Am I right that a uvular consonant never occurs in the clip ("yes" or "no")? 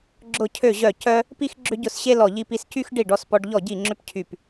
yes